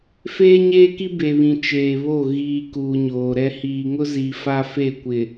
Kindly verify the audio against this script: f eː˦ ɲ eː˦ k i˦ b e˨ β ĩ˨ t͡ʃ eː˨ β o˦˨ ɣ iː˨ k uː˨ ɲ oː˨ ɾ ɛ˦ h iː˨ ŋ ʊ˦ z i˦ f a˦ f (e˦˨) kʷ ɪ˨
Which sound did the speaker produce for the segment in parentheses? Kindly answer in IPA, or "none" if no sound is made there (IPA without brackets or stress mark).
e˦˨